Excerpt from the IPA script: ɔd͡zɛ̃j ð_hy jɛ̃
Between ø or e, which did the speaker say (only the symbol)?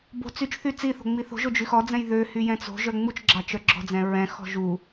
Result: ø